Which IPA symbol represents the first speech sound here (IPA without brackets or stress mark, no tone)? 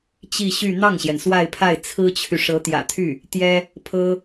t͡ɕ